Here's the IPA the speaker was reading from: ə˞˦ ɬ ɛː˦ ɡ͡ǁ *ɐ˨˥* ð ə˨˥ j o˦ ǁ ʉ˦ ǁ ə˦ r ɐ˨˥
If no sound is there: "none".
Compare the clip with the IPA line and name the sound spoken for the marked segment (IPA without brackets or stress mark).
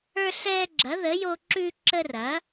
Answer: ɐ˨˥